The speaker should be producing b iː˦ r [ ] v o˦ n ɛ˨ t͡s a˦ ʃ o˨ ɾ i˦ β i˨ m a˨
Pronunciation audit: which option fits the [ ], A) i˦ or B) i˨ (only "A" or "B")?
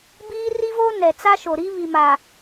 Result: A